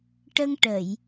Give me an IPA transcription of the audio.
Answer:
ʈ ə˧ ŋ ʈ ə˨˩˨ j

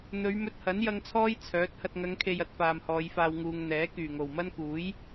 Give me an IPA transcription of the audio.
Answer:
n̪ ɵ˨˧ ɥ m ɵ˧ t̚ h ɐ˨˥ n j ɐ˧ ŋ t͡sʰ ɔː˥ j t͡sʰ œː˨˥ t̚ h ɐ˨ t̚ ŋ ɐ˨˧ ŋ kʰ e˨ j ɐ˥ t̚ f aː˨ m h ɔː˨˧ j f aː˧ w ŋ uː˨ ŋ n̪ ɛː˨˥ k yː˨˩ ŋ o˨˩ w m ɐ˥ n k uː˨˥ j

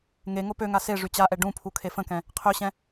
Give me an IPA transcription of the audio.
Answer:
ŋ e ŋ o p ø ŋ a s e ʐ y t͡ɕ a ʔ ɛ ɖ ũ pʰ u kʰ e f ə̃ k ɛ̃ | qʰ ø ɕ ɛ̃

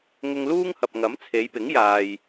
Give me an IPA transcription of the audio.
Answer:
ŋ ʊ˧ ŋ l uː˥ ŋ h ɐ˨ p̚ ŋ ɐ˨˥ m t͡sʰ e˨˧ j p ɪ˨˥ ŋ j aː˨ j

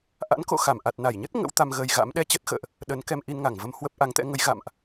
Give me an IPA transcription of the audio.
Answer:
ʔ a̰˧˥ n k o̰˧˨ x a˧˩ m ʔ a˨˩ t̚ n a˧˩ j ɲ ə˦˥ t̚ ŋ ə̰˧˥ w t̪ a˧ m ɣ ə˧ j ɣ a̰˧˥ m ɗ ɛ˧ t͡ɕ ə˦˥ t̚ x ə̰ː˧˨ ʔ | ɗ ə˨˦ n k ɛ˧ m ʔ i˧ n ŋ a˧˩ ŋ v ə˧ m h w ə˦˥ p̚ ʔ a˨˦ ŋ t̪ ɛ̰˧˥ ŋ ə˨˦ j ɣ a̰˧˨ m ʔ

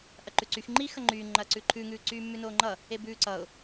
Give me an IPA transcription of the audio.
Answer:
ʔ ɐ ǃ ʉ ǀ y x ŋ͡ǃ i x ɐ ŋ͡ǃ yː ŋ͡ǃ ɐː ǀ ʉ ǃʰ ʉ ŋ ʉː ǀ yː mː ʉ n oː ŋ͡ǃ ʌ | e b ʉː ǀ ʌ ʊ̯

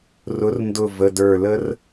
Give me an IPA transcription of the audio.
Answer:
r ʊ˩˥ r n d ʊ˧˩ v ə˩˧˩ d ə˞˧˩ l ə˥ r

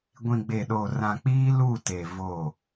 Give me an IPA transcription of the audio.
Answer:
ɡʷ ĩ˨ ɡ͡b e˨ ɗ oː˨ r ã˨ k͡p iː˦ l u˦˨ t e˨ v o˦˨

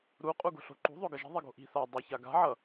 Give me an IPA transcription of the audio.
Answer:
ɾ u qʼ u ɡ o̤ ɬ o̤ ǃ ṳ ðˤ o ɡ ʌ ʒ i̤ ðˤ i ɡ o̤ ʔ i̤ θ a dˤ ʌ ç a ɡ a̤ ʕ ʌ

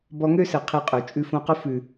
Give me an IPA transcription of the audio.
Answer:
b ɔ˧ ŋ ø˦ s ɘ˨ qʰ i˧ qʼ ø˨ t͡ʃʼ ʉ˦ f õ˦ q ʊ˦ f ʉ˨

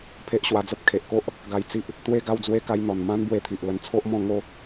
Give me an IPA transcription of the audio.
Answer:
pʰ e˦ ʔ ɕ w a˧ d͡z ə˦ p̚ kʰ e˨ ʔ k o˦ ʔ | ɡ a˧ j t͡s i˦ ʔ | t̪ w e˦ ɡ a˥˧ w d͡z w e˥˧ k a˧ j n̪ ɔ˨˩ n m ã˦ n b w e˧ t̪ʰ i˨ ʔ l ə˧ n t͡sʰ o˦ ʔ m ɔ̃˥˧ ŋ o˦

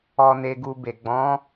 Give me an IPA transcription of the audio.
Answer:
ɔ˧ n e˧ ɡ u˧ b e˨ ɡ͡b ɔ̃˨˦

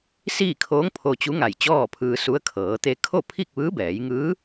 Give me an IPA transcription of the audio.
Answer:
s iː˥˨ kʰ oː˧˥ ŋ pʰ o˧ t͡ɕ u˧˥ ŋ a˧˩ j t͡ɕ ɔː˥˨ pʰ ɯː˧ s u˧˥ ə̯ kʰ ɤː˩˧ t̪ e˧ kʰ o˥˨ pʰ i˥˨ k̚ ʋ ɯː˧˥ b ɛː˩˧ j ŋ ɯː˧˥

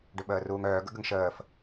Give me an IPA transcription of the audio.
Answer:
ɖ ʏ ɓ əː r uː ŋ œː ɡ ə̰ ɡ ə ŋ ʃ əː f

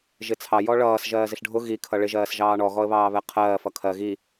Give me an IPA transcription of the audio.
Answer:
ʒ ɪ t͡sʰ ɑ j ɔ ɭ ʌː s ʒ ɜː z ɪ ɬ ɖʱ ʊ ɣ i kʰ ʌ ɭ ɪ ʒ ɜː s ʒ ɑː ɳ ɔ ɣ ɔ ə̯ β ɑː β ɛ qʰ ɜː f ʌ kʰ ɜ ɣ i

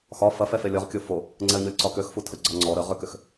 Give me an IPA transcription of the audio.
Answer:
x ɒ f ɐ f ɛ f e lʲ ɒ ʁ kʲ o f o | ŋ͡ǀ ɛ ə̯ ɲ o lʲ ǀ ɒ k ø x f u tʰ ə ɡ͡ǀ ɒ ŋ͡ǀ ɔ ɾ ə ʁ ʏ k ʏ x

